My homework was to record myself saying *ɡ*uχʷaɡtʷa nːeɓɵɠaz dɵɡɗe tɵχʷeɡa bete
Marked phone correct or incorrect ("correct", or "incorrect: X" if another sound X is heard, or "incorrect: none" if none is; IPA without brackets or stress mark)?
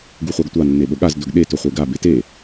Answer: correct